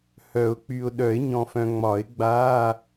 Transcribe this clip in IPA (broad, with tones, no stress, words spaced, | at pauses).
hœ˨˩˦ʊ̯k͡py˨ʊ̯ɗœ˨˩˦ɪ̯ ɲɔ̃˨fœ̃˨ ŋ͡mɒ˨˩˦ɪ̯ɡ͡ba˧˥˧